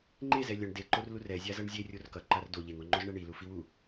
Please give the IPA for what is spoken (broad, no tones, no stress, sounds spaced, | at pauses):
ŋ͡ǃ e z ɛ lʲ ʌ ɳ d e ǃ o r l u r ɛ zʲ a z ʌ ɳ zʲ e rʲ o r k ʌ ǃ a r d o ʎ e ŋ o ŋ͡ǃ o z ɳ ɛ ɳ i l u f i w u